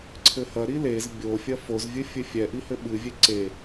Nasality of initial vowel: oral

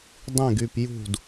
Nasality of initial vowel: nasal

